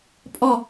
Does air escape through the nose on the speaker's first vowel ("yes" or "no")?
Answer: no